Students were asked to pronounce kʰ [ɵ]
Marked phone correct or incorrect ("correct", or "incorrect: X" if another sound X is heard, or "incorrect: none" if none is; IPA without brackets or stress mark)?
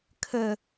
incorrect: ə